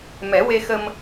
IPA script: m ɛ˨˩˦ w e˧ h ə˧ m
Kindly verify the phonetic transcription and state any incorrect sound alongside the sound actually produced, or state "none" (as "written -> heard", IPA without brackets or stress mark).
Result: h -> x